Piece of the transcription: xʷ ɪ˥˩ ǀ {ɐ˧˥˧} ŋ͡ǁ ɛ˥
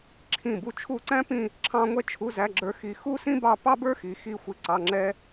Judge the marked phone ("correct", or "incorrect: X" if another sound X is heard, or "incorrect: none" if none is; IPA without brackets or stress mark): incorrect: ɑ˧˥˧